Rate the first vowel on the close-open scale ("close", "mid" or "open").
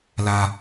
open